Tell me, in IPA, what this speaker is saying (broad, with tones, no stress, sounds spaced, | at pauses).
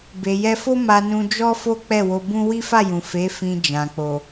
b e˨ j ɛ˧ f o˦ m a˧ n ũ˧ d͡ʒ ɔ˦ f o˦ k͡p ɛ˦˨ w o˧ b ũ˦ w i˦ f a˦˨ j ũ˨ f e˨˦ f ĩ˧ d͡ʒ ã˨ k͡p o˨